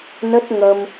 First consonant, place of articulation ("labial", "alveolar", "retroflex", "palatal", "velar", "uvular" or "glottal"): alveolar